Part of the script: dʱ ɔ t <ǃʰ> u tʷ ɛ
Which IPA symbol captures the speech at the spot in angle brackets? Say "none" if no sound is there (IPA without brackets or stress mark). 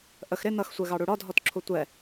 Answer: ǁʰ